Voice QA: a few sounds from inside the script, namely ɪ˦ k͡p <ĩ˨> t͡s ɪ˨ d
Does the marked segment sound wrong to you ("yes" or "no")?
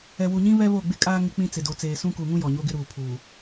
yes